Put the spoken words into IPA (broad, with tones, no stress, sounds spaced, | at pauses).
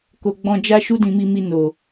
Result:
k o˨ ɡ͡b ɔ̃˧ d͡ʒ a˦ ʃ u˦ d ĩ˧ m i˧ m i˧ n o˨